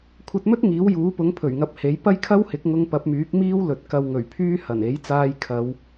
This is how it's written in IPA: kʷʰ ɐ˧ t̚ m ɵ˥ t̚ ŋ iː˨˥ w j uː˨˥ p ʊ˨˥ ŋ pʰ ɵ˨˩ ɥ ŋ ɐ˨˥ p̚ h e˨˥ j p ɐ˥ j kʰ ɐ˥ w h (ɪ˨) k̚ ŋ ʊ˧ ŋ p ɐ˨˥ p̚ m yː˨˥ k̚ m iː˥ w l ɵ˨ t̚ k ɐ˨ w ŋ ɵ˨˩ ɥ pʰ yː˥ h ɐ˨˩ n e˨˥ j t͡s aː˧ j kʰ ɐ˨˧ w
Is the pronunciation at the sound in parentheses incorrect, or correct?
incorrect